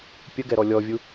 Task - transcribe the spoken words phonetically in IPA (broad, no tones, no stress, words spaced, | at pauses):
pʲəɡɛɾɔ lʲɔvʲu